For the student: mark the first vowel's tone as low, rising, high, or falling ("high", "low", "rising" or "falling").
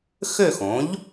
falling